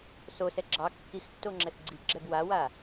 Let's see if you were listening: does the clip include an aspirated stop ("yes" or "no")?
no